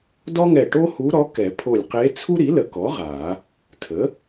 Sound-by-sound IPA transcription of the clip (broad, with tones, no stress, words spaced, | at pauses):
dɔ˥ŋɛ˧˩ ʈo˥hu˧˥ɾɔ˧˥ kɛ˨˩˦ pʰo˧˩lʲqe˧˥ t͡sʰu˥ɾi˩˥lə˨˩˦kɔ˩˥ ʁa˨˩˦ | tʰə˩˥